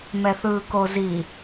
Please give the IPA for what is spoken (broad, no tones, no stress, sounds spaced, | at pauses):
m ɛ θ ɯː k o z i